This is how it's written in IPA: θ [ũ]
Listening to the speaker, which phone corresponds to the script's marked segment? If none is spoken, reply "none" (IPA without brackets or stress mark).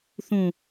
ũ